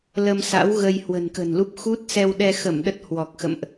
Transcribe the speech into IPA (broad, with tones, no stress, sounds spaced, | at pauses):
l ə˧ m s a̰˧˥ w ɣ ə˧ j h w ə̤˨˩ n k ə̤˨˩ n l u˦˥ p̚ x u˦˥ t̚ s ɛ˧ w ɗ ɛ˧ x ə˧˩ m ɗ ə˦˥ t̚ h w ɔ˨˩ k̚ x ə̰˧˨ m ʔ